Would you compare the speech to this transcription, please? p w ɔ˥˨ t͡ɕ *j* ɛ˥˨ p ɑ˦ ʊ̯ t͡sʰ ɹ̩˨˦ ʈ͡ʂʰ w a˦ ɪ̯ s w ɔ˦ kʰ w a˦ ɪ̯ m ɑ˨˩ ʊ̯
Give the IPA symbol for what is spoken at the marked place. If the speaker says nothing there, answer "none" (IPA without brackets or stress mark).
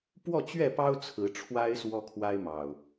ɥ